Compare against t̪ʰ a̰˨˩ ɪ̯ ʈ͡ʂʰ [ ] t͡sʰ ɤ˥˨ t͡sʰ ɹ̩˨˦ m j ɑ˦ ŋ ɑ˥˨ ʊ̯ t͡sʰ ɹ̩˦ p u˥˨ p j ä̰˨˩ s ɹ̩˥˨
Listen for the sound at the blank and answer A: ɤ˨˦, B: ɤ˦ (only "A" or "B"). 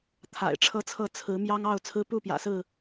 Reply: B